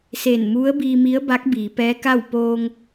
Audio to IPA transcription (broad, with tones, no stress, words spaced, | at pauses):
se˧˩nmu˧˥ə̯biː˧mi˧˥ə̯ ba˧˥k̚biː˩˧pɛː˧˥ka˥˨w poː˧ŋ